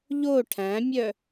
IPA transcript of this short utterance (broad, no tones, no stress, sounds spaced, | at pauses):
ʎ o ʈʰ æ̃ mʲ œ